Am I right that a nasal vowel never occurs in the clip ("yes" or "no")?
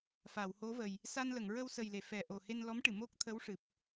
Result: yes